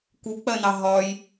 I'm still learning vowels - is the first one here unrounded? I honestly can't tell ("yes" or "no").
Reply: no